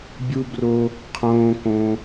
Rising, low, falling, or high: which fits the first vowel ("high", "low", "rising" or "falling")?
high